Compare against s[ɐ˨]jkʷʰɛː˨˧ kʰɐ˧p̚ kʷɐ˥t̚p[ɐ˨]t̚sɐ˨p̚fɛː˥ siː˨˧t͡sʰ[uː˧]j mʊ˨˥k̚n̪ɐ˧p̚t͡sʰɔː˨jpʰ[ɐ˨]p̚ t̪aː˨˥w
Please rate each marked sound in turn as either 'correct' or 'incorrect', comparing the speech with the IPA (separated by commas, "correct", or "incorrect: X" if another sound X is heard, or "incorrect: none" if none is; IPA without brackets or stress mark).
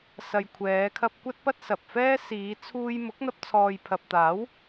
correct, incorrect: ɐ˥, correct, correct